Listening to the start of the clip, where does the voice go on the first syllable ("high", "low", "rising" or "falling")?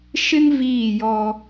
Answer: high